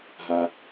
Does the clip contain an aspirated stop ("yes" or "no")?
no